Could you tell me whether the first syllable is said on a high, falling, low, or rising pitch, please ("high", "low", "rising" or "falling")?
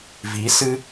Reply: rising